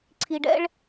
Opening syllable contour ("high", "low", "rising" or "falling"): low